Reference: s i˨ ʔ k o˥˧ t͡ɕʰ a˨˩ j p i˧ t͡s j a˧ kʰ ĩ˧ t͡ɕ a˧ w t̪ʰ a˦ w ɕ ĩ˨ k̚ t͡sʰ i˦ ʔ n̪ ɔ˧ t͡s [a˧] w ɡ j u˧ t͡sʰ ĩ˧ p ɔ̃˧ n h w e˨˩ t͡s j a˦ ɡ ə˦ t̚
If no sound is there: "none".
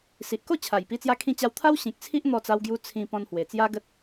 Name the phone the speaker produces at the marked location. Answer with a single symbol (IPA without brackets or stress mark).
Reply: a˧